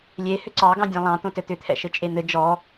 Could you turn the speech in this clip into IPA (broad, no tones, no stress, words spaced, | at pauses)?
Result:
lʲe hʏǀɑɡɑ̃dʲẽ lˠɑ̃t̪õ tɘt̪ʏt̪ʰɛ̰ ʃɘt͡ʃʼen̪ɘ d͡ʒɔ